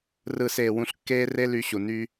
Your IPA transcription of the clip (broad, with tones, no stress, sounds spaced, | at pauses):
r ɯ˨ s eː˨ w ũ˧ ɬ kː eː˦ r e˦ l y˧ ɕ u˨ n yː˧